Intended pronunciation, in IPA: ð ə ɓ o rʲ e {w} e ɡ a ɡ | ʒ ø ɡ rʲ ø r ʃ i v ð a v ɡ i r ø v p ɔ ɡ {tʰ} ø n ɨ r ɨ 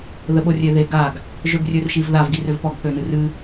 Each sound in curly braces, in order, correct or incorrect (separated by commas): incorrect, incorrect